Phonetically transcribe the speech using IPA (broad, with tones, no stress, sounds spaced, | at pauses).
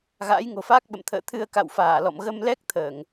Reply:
ɣ a̰ː˧˥ j ŋ o̤˨˩ f aː˦˥ k̚ ɓ ə̰˧˨ m t̪ʰ ə̰ː˧˨ t̪ʰ ɨ˧ ə̯ k a̰˧˨ w f aː˧˩ l ɔ̰˧˨ m ɣ ə˧ m l ɛ˦˥ k̚ t̪ʰ əː˧˩˨ ŋ